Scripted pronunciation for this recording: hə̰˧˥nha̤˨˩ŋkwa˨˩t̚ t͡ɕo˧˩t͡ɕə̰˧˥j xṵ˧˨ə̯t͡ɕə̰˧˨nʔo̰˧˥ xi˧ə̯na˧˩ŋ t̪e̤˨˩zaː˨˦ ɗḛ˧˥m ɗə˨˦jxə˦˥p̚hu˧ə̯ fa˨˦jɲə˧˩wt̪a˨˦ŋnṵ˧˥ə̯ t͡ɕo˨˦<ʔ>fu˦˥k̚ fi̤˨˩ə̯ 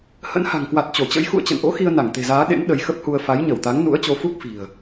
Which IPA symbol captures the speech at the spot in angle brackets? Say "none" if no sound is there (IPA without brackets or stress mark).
none